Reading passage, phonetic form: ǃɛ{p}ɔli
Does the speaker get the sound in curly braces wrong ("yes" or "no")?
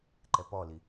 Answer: no